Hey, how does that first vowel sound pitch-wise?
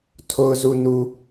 low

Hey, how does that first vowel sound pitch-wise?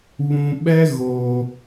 low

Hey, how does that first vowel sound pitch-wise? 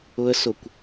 high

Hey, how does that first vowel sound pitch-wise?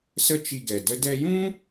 high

